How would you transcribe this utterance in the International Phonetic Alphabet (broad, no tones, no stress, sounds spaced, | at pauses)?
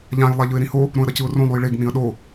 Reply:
ʎ ã j lˠ a ʎ ɯ ɪ̯ ɾ ĩ h o | ɾ õ ə̯ ɾ ʌ c ɯ ʊ̯ r õ lˠ u j ɭ e ɡ n ĩ ə̯ ɗ o